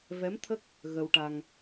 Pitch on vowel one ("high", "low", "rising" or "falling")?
rising